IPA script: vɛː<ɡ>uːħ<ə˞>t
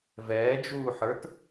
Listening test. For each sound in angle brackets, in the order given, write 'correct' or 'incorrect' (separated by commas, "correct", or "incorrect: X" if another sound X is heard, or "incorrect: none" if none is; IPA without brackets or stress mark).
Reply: incorrect: d͡ʒ, correct